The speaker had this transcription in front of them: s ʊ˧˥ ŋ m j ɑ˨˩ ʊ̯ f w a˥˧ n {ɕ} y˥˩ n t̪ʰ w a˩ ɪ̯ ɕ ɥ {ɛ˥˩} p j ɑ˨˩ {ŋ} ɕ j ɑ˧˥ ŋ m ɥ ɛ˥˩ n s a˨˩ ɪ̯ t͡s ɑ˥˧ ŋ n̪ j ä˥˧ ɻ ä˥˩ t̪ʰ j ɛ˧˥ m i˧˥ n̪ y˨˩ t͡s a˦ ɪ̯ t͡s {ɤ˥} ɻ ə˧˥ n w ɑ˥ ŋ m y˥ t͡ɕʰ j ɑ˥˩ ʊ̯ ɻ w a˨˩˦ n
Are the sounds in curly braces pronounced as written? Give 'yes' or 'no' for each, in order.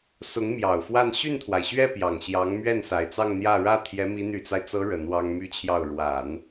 yes, yes, yes, no

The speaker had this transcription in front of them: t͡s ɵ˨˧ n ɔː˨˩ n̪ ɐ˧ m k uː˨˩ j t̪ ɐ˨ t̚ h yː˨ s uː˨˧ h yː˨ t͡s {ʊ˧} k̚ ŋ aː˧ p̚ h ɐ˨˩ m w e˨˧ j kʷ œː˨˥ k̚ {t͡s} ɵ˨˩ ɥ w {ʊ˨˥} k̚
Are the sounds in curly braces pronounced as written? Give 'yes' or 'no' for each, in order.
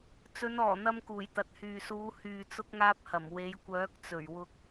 yes, yes, no

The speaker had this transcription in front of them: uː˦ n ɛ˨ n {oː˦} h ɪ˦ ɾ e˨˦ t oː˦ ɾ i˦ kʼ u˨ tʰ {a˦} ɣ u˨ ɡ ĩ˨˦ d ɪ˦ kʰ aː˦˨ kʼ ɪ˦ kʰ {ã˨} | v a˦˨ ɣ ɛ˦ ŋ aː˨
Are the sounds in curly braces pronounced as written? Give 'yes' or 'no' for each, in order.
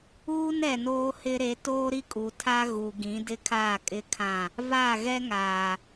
yes, yes, no

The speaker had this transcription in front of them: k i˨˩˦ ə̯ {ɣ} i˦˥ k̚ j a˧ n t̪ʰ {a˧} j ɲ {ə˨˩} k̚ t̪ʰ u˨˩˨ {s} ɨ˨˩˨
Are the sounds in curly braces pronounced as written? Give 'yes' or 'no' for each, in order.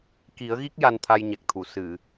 yes, yes, no, yes

